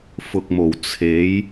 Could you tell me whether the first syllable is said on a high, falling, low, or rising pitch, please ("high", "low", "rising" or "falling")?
low